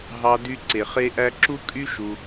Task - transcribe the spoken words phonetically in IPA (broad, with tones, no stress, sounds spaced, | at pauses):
ɦ ɑ˧ d y˧ ǀ e˨ χ e˦ ʔ æ˦ ǁ u˦ kʼ y˦ ʃ u˧